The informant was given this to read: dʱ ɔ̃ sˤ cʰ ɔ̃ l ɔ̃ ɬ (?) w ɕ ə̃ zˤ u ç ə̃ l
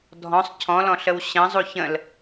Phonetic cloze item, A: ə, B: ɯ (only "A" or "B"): A